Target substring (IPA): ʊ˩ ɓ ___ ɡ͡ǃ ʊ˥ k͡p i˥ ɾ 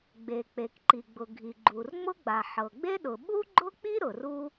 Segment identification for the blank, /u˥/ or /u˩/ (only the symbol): u˥